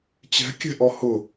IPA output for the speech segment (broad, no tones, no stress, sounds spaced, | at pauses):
t͡ɕ ɛ̤ kʲ ɛ̤ ʔ ɔ h ʊ